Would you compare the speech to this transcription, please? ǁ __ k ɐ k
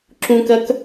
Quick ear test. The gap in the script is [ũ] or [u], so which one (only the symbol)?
ũ